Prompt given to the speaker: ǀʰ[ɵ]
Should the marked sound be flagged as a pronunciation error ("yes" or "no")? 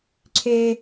yes